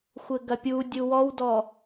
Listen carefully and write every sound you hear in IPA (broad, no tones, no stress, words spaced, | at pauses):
xʷɘɡɐpʲu dʲuwɔwdɔ